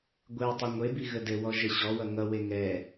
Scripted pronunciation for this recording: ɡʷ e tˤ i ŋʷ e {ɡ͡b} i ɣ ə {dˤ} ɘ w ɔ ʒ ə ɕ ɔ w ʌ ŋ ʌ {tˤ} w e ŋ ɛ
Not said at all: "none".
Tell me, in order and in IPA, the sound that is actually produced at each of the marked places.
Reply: b, d, none

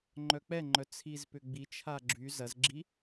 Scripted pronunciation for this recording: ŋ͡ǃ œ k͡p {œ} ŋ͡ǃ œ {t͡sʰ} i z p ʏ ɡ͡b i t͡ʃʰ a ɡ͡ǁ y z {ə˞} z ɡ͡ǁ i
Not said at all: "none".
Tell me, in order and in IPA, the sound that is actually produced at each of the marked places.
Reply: ɛ, t͡sʰ, ɐ

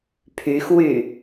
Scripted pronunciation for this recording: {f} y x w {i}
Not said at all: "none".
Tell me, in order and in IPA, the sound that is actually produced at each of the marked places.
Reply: pʰ, y

